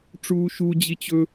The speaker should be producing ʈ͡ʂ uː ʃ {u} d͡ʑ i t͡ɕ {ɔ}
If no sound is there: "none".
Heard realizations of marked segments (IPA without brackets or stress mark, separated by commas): u, ɵ